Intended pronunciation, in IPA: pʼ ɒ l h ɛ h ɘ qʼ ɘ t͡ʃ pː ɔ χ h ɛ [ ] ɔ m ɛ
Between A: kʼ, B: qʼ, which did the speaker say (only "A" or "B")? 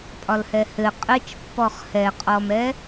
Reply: B